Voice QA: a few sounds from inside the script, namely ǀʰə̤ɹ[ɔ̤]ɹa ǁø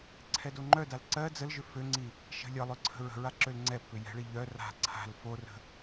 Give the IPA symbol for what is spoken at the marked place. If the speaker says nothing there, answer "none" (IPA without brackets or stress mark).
ə̤